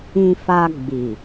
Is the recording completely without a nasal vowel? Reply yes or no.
no